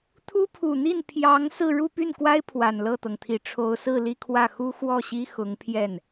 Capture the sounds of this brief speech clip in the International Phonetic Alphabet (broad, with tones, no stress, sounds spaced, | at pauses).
t̪ʰ u˥ pʰ u˨˩ n̪ i˥˩ n pʰ j ɑ˧˥ ŋ s ɹ̩˥˧ ɻ u˥˧ p y˥˩ n k w a˥ ɪ̯ pʰ w a˨˩ n l ɤ˥˩ t̪ ɤ˩ ŋ t̪ʰ i˨˩ ʈ͡ʂʰ o˧˥ ʊ̯ s ɹ̩˥˧ l i˥˧ kʰ w ä˥˩ x u˥ x w ɔ˥˩ ɕ i˥ x ʊ˧˥ ŋ pʰ j ɛ˥˩ n